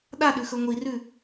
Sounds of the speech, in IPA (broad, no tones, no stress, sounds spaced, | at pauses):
ɗ a ɗ ʉ x ɵ ŋʷ i r ʉ